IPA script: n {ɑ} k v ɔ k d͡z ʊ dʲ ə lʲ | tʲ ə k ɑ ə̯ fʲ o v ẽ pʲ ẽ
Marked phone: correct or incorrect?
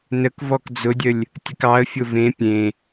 incorrect